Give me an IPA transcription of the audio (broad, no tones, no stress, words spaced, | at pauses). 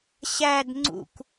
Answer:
ɕæd ŋ͡ǀṵk